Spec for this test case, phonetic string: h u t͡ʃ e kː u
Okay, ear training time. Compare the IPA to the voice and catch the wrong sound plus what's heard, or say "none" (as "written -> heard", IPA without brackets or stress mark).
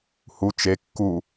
none